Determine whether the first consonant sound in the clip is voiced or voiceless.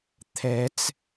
voiceless